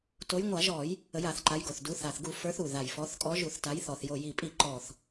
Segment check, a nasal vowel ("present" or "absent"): absent